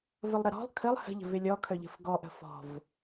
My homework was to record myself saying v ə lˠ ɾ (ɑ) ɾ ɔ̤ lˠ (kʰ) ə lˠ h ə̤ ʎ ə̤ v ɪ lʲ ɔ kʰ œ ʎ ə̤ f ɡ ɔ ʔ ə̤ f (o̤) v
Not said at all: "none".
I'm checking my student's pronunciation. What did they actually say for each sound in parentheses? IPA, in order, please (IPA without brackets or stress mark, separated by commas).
ə, kʰ, ɔ̤